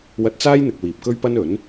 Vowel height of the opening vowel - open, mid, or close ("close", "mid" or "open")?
open